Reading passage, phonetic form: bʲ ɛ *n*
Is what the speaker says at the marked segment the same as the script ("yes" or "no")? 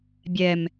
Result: no